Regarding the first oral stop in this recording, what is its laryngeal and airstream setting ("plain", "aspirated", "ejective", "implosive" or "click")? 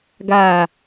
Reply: plain